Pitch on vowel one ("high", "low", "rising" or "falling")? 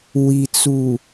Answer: low